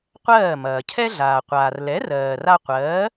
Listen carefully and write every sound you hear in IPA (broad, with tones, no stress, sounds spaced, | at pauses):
qʷ ɜː˥˩ m ɐː˩ cʰ ɛ˥ ɮ aː˩ qʷ aː˩ r l ɛ˩˥ r ɜː˩ r a˧ qʷ ɜː˩˥